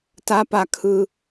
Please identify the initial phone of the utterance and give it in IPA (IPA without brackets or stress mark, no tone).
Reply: t